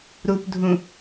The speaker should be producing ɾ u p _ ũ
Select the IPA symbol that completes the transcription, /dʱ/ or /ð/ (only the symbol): dʱ